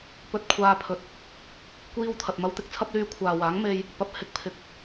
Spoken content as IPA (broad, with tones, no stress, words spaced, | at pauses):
pɵ˧t̚ kʷʰaː˧pʰɵ˨t̚ | kʷiː˥wt̪ʰɐ˨t̚mɐ˥w t̪ɪ˧k̚t͡sʰɐ˥p̚ lyː˥ kʷʰaː˨waː˨˥ŋme˧j | pɐ˨˥p̚ hɪ˧k̚pʰɪ˨˥k̚